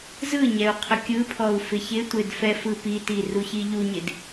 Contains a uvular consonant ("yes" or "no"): yes